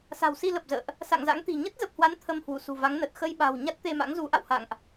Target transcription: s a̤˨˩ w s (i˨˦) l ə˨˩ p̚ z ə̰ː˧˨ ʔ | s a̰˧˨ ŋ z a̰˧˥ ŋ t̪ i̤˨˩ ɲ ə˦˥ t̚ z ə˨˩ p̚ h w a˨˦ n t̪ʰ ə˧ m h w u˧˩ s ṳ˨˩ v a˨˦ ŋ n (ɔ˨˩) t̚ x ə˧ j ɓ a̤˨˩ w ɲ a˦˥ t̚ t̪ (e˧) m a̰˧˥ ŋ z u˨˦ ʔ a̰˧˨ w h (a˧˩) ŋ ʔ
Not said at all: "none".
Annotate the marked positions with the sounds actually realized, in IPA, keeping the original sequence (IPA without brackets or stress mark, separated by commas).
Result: i˧, ə˨˩, e˧, a̰˧˨